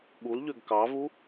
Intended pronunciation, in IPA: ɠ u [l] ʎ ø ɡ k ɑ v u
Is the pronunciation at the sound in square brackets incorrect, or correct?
correct